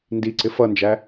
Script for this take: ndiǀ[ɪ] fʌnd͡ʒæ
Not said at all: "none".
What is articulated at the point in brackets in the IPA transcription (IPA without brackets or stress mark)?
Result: ɪ